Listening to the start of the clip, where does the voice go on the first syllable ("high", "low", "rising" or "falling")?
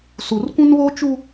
low